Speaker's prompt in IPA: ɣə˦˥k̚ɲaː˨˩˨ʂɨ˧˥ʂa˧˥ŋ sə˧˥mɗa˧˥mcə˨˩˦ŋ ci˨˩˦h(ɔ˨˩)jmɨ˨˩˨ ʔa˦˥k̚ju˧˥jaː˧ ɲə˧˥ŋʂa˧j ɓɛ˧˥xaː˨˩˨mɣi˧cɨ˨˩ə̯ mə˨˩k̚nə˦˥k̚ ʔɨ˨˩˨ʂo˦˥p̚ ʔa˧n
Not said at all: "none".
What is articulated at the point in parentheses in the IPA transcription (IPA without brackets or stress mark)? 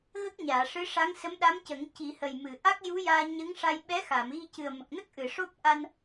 ə˨˩